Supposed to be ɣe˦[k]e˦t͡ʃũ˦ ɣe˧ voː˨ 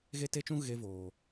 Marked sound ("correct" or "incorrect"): incorrect